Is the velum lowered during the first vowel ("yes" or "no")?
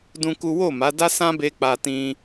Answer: yes